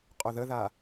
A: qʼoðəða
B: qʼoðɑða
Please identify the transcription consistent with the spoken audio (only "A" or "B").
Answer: A